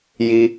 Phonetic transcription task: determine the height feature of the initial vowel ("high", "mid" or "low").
high